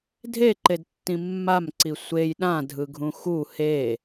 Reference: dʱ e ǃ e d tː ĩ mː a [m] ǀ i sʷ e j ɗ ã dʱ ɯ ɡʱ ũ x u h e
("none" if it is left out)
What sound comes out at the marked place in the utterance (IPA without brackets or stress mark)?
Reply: m